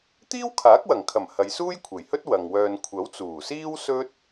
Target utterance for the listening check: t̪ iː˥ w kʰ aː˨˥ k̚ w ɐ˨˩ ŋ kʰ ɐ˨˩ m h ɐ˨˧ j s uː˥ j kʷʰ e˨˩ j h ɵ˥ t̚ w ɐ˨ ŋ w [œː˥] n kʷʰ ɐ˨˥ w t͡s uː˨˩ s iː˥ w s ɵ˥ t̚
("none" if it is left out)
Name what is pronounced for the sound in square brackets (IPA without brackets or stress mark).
œː˧